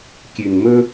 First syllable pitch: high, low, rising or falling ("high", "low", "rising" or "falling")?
low